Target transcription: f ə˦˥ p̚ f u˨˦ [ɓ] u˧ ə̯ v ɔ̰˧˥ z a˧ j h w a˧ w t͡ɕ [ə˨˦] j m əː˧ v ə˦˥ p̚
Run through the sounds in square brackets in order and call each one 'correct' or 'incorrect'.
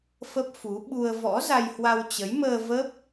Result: correct, correct

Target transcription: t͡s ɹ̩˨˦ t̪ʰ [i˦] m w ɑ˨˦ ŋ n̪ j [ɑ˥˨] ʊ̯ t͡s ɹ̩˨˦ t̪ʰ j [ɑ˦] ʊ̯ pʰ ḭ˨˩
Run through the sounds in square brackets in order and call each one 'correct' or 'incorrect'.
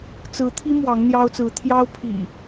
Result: correct, incorrect: ɑ˦, correct

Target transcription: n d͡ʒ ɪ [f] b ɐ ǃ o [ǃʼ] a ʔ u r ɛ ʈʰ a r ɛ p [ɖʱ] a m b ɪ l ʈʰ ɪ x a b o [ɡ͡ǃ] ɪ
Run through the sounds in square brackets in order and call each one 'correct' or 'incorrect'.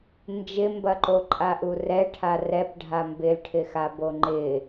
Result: incorrect: m, correct, correct, incorrect: ŋ͡ǃ

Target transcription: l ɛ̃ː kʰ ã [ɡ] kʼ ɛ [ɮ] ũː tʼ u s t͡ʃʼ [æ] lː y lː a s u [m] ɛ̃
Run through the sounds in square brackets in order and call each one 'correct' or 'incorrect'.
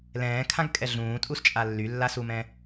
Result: correct, correct, incorrect: a, correct

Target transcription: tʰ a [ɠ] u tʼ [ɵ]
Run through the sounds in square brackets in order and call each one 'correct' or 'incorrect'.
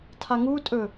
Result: incorrect: ŋ, correct

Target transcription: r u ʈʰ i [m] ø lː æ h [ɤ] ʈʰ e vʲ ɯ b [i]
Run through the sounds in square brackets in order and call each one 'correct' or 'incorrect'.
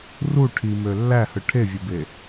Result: correct, incorrect: ɯ, incorrect: e

